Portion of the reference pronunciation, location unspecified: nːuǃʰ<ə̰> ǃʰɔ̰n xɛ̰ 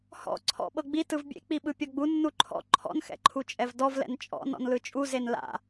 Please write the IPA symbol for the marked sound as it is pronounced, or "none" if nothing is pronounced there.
ɔ̰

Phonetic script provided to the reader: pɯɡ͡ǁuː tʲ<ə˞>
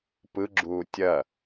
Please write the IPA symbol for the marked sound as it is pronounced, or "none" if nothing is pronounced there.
ɐ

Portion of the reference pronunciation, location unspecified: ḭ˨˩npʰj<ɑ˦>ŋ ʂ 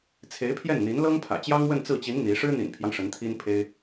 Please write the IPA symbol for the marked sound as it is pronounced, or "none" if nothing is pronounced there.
ɑ˦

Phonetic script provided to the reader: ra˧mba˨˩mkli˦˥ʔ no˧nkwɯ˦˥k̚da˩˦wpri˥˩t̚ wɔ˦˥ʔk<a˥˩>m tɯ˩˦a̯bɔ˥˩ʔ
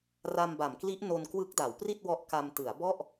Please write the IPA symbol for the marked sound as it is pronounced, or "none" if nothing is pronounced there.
a˧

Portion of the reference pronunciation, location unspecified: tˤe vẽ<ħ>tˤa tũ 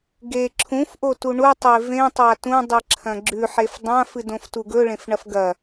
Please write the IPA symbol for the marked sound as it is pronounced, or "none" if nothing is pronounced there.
none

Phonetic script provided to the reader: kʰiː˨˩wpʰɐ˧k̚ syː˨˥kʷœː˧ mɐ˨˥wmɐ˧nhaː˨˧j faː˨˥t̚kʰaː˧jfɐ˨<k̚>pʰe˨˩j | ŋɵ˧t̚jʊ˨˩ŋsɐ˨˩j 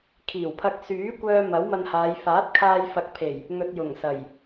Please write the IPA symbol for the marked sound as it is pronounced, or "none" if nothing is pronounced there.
k̚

